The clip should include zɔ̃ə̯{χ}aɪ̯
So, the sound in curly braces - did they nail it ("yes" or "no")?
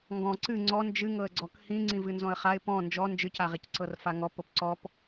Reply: yes